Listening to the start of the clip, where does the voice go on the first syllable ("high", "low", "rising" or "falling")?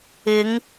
rising